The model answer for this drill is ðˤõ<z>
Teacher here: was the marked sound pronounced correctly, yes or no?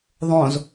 yes